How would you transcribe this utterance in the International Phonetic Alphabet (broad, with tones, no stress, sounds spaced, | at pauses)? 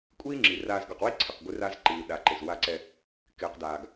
kʷʼ iː˦ ŋ͡ǁ i˨ r aː˨ z ɡ ɔ˨ q w i˦ ǀʰ ɪ˨ q ɡʷ ɪ˦ r a˦ z ǃ iː˨ ɗ a˨ ǃ ɪ˨ z w a˦ ǀ ɛ˦ | k ɪː˨ q d aː˨ ɡ